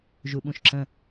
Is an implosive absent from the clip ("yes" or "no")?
no